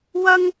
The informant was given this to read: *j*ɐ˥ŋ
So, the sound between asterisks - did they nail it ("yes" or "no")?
no